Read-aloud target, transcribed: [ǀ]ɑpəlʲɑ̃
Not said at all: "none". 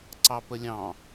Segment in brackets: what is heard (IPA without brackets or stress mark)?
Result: ǀ